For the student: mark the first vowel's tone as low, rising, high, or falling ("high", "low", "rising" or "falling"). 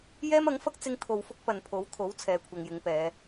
high